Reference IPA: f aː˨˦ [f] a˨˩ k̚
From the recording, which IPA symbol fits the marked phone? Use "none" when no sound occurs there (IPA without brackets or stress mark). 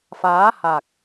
h